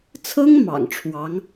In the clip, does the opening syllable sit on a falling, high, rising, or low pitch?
high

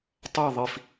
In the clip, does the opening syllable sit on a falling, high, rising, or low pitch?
falling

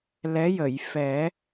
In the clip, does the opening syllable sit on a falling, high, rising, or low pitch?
rising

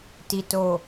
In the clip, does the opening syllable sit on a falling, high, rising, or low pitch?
low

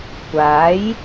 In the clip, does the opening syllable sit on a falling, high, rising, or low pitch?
rising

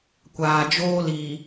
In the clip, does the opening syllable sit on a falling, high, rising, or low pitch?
low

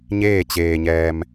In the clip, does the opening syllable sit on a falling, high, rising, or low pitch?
falling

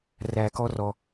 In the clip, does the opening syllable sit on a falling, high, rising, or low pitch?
low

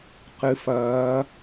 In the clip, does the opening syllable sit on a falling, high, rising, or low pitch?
rising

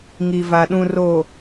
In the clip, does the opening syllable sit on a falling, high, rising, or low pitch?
low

